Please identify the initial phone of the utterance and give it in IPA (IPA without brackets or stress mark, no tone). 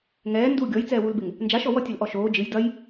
ŋ